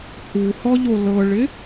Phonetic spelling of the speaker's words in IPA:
h u h ɔ ʎ o l ɤ ɭ ɪ

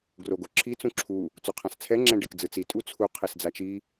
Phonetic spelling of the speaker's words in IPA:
ɡ r o ɡ o ǁʰ i t͡s ũ ǁʰ u | t͡s o qʰ ã s t͡sʰ ɛ ŋ͡ǁ ɛ̃ ɖ e k d͡z ɯ t͡s i tʼ u t͡sʰ u qʰ e s d͡z a t͡ʃ i

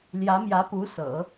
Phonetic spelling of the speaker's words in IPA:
l j ä˧˥ m j ä˧˥ p u˧˥ s ɤ̰˨˩˦

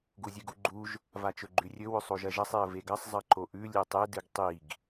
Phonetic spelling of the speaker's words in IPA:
ɡ u zʲ ɨ ɡ u ɡ͡ǃ u ʒ | v a t͡ʃ ɵ ɡ͡ǃ ʉ rʲ ɵ w ɵ sˤ o ʒ ɐ ʒ ɐ sˤ e ə̯ v e ɡ ɐ sˤ zˤ ɐ ǃ o ʔ ʉ lʲ e tˤ e d ɨ ɡ tˤ i ɡ

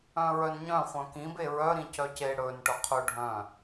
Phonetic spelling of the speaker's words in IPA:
œ̃ ɹ œ n ɲ œ̃ χʷ œ̃ k ĩ b e ɹ œ ɾ ĩ c œ c e ɽ ɵ n ʈ œ qʰ ɵ ɖʱ œ̃

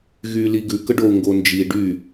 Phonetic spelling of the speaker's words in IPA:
ɣ yː l i ɡ ʉ k ə ɖ o u̯ ŋ ɡ o n d͡ʒ i ɖ y

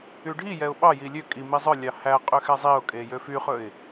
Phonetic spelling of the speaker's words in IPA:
y ɖʱ i j ɛ ʊ̯ ɓ ɑ j i lʲ ø kʼ i m i zˤ œ lʲ ɑ h æ qʼ ø x ɛ zˤ i ʊ̯ kʼ e j ø f y χ ɵ ɪ̯

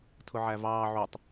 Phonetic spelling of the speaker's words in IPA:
tʰ ʊ ʕ æ v ɑː ʕ u tˤ

